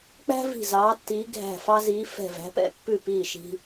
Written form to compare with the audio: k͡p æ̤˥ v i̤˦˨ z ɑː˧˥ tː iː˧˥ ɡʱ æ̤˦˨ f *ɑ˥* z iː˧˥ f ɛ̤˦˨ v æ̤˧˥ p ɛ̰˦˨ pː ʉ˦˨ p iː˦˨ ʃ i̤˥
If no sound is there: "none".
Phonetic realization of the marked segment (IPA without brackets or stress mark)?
ɑ˥